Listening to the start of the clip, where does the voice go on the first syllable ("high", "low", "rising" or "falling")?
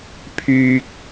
high